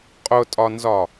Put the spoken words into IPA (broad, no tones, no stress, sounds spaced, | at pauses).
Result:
qʼ ʊ tʼ ɒ n z ɒ